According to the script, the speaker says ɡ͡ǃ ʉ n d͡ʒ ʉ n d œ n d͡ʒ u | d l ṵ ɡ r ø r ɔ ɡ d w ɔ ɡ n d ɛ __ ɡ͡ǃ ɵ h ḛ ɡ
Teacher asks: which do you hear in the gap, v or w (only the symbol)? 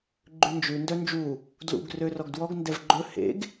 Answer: v